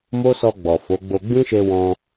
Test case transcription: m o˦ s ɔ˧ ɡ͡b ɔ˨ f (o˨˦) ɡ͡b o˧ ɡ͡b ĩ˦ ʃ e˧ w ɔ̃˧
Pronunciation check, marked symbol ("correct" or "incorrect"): correct